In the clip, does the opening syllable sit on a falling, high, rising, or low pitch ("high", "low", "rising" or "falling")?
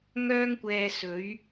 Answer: high